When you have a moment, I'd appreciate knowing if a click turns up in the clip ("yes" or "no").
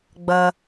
no